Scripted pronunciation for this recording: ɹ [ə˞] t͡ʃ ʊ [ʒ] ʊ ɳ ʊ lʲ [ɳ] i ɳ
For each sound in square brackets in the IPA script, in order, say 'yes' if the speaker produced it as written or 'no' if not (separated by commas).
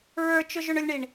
yes, yes, yes